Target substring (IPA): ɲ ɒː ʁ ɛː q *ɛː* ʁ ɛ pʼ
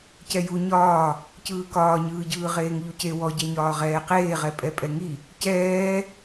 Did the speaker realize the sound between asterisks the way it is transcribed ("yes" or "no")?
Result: no